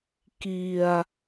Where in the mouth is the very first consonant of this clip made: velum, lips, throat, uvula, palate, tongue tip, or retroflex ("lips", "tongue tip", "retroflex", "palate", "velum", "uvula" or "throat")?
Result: velum